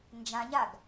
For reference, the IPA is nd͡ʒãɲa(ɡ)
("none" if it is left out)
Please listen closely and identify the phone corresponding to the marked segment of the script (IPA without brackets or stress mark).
ɡ